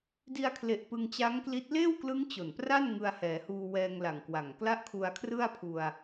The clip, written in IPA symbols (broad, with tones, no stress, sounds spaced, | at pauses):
d i˧ a̯ kʰ l e˨˩ ʔ p ɯ˧ ŋ t͡ɕ a˦˥ ŋ k l i˦˥ t̚ l eː˥˩ w k l ɯ˦˥ ŋ t͡ɕ o˨˩ n p r a˥˩ n ŋ ɯ˧ a̯ h ɛː˩˦ h uː˧ w ɛː˧ ŋ l a˨˩ ŋ k w a˨˩ ŋ k l a˥˩ ʔ kʰ u˧ a̯ kʰ r ɯ˥˩ a̯ pʰ u˧ a̯